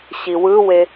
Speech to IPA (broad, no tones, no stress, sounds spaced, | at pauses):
ɕ i w ɯ w e